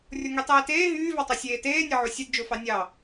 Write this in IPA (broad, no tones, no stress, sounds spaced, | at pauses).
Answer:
rʲ o ŋ y tˤ eː t eː ɦ yː v ɑ tˤ o sʲ eː t eː nʲ ɑ ʕ u sʲ ɯ d d͡ʒ o f ɑ nʲ ɑ